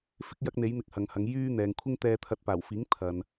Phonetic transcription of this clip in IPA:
f ɪ˥ k̚ j ɐ˥ k̚ n̪ e˨˥ j n̪ ɪ˧ k̚ h ɐ˨ ŋ h ɐ˨˧ ŋ j yː˥ n̪ ɛː˨ ŋ kʷʰ ɪ˥ ŋ t̪ ɛː˧ t̪ʰ ɐ˧ t̚ p aː˨˩ w f iː˨˥ ŋ t̪ʰ ɐ˨ n

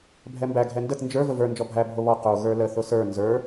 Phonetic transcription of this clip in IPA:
bʱ ɛ m b æ ɡʱ ɛ n d ə t n d͡ʒ ə˞ v ə v ə˞ n d͡ʒ ɔ bʱ æ bʱ o β ɔ q o ɣ ə˞ l ə θ ʊ s ə˞ n z ə˞

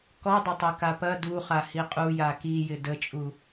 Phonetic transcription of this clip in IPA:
k ɔ dˤ ɐ tˤ a k a p ɐ d u χ a h i qʼ u j a k i j ɪ d ə t͡ʃʼ u

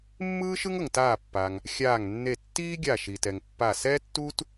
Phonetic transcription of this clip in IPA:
mː ɯː˥ ʃ ɯ˥ ŋ ɤ˩ ŋ t aː˧˩ pː a˩ ŋ | xʲ aː˧˩ ŋ nː e˧˩ tː iː˥ ɡʲ a˧˩ ʃ i˩ t ɛ˩ ŋ pː a˧˩ s ɛː˥ tː u˥ t

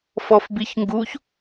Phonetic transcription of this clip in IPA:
f ɔ f b i ç ŋ ɡ u ç

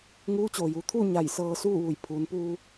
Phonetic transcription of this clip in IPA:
ŋ uː˧˥ t͡ɕ oː˩ j u˩˧ t̪ʰ u˥˨ ɲ a˧˩ j s ɤː˧ s uː˥˨ ʋ u˧˩ j pʰ uː˩˧ n p uː˧

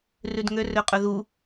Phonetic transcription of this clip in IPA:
r ʉ d ŋ ø r ø qʼ ɵ ð u

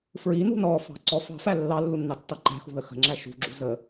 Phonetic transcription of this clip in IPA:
f ɹ i n ṳ n ɔ f ɑ̤ ǀ ɔ f ɑ̤ f æ lː ɑ lː u nː ɑ tː ɑ ǃ æ̤ x ṳ ð ə x ə̤ ŋ͡ǁ æ ʃ ṳ ɡ͡ǁ ṳ z ə

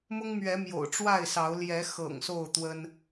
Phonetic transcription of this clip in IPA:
m ʊ˦ ŋ m ɥ ɛ˨˦ m j o̰˨˩ ʊ̯ ʈ͡ʂ w a˥˨ ɪ̯ s ɑ˨˦ ʊ̯ l j ɛ˨˦ x ɤ̰˨˩ ŋ s o˥˨ ʊ̯ t̪ w ə˦ n

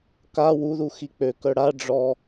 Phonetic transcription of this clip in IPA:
k a w u ð u x i k͡p ø k œ ɽ a ɖ͡ʐ ɔ

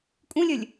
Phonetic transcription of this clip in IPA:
kʼ ũ lʲ œ lʲ

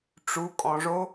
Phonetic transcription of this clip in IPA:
ʈ͡ʂ u˩˧ kʼ ɔ̃˩ ʐ o˧˥

